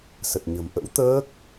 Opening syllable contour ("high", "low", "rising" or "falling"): low